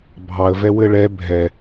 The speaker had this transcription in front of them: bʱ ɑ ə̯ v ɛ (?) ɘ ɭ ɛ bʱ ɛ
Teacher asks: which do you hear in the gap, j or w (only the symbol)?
w